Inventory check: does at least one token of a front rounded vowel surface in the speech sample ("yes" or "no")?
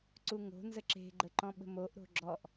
no